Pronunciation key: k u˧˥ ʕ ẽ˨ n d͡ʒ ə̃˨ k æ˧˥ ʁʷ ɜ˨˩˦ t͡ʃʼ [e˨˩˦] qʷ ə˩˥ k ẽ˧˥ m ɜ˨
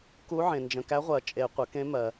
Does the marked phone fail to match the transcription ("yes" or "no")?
no